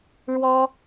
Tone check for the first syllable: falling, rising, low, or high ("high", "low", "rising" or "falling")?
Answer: high